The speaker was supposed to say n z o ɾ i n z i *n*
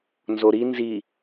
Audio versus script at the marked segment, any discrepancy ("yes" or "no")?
yes